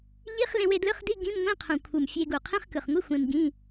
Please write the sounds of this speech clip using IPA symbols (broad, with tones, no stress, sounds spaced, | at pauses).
ʎ i˧˥˧ χ l ẽ˧ w e˧ d l ɯ˧˥˧ χ d i˧˥˧ ɡ ĩ˧˥˧ m ŋʷ ĩ˧˥˧ qʰ ũ˨˩ kʷʰ ɯ˨˩ m fʲ e˧ ɡ u˨˩ qʰ ĩ˧˥˧ χ k ɯ˨˩ χ ŋʷ i˧˥˧ xʷ ẽ˧ m ɡ ĩ˧˥˧